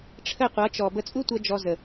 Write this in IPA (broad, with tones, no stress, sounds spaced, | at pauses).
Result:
ʈ͡ʂʰ ə˦˨ qʷ ʌ˨˦ t͡ʃ ɔ˨ b ə˧ t͡sʼ u˦ tʷ ʌ˧ d͡ʒ ɔ˧ z ə˨